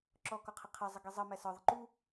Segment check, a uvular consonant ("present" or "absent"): present